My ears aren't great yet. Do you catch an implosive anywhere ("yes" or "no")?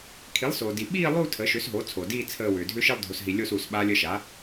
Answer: yes